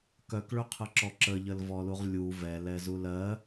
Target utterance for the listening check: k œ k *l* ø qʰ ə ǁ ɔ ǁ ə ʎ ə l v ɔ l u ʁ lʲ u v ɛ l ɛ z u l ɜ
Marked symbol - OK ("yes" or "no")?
no